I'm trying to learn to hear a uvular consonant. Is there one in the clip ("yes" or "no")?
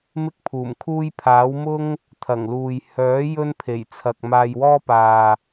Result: no